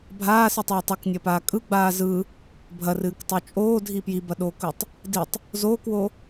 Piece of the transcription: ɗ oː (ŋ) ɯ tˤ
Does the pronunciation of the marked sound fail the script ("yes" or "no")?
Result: yes